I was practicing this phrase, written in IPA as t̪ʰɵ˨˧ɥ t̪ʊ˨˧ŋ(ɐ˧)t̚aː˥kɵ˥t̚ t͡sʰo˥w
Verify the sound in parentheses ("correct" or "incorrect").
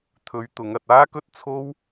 correct